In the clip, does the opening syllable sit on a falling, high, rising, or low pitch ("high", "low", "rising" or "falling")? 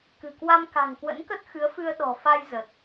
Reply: low